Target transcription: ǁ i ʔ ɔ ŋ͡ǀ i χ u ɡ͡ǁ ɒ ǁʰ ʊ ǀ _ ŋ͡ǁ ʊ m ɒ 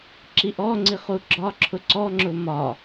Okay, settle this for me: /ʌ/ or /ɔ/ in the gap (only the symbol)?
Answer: ɔ